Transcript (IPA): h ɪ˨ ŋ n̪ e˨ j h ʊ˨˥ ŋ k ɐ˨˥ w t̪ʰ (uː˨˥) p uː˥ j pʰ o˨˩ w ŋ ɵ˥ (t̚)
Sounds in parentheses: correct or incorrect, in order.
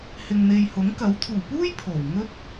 incorrect: uː˨˩, correct

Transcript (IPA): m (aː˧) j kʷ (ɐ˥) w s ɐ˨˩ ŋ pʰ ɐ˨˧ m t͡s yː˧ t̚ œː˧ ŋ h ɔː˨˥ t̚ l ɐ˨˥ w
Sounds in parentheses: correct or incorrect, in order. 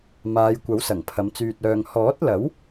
incorrect: aː˨˧, incorrect: ɐ˨˥

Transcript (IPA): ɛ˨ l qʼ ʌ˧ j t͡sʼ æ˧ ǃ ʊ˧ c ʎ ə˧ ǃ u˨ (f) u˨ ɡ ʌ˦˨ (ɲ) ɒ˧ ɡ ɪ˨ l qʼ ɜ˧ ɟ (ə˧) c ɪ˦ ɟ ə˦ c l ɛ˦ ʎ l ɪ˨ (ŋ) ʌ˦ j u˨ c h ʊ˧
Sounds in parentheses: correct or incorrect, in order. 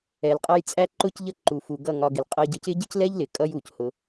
correct, incorrect: ŋ, correct, incorrect: kʼ

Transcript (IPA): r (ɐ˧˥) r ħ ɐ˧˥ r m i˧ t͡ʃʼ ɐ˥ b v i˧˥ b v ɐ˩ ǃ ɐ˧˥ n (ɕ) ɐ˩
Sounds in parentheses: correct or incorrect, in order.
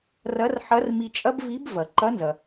correct, incorrect: z

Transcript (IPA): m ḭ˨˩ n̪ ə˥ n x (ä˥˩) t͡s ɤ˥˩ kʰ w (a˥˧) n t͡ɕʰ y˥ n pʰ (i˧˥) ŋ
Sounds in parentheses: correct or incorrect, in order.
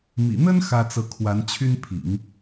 incorrect: ä˥, incorrect: a˧˥, incorrect: ḭ˨˩˦

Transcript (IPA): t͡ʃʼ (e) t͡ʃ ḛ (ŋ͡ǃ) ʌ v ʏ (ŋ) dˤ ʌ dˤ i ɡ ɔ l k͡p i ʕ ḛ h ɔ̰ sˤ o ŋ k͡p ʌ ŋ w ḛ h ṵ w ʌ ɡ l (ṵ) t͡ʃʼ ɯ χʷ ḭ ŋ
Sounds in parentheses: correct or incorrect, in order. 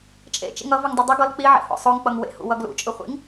incorrect: ḛ, incorrect: ŋ, correct, correct

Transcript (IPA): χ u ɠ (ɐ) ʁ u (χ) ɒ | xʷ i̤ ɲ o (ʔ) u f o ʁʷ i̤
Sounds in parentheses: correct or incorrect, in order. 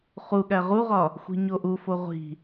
incorrect: æ, incorrect: ʁ, correct

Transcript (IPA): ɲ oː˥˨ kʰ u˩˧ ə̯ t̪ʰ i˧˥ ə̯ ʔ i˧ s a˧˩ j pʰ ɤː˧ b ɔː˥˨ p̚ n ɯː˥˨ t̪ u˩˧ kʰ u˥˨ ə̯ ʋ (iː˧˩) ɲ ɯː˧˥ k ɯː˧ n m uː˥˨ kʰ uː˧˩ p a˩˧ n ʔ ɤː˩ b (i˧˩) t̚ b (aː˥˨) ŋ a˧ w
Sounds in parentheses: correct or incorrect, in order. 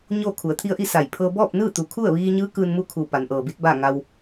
incorrect: iː˧, incorrect: i˧˥, correct

